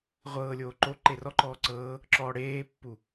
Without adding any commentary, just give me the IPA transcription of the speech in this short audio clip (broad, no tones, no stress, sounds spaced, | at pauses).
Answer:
ʁʷ ɤː lʲ oː ǃ o ǃ e r ɔ ǃ ɔː ǀ ɤː | ǁ ɔː ɽ eː pː u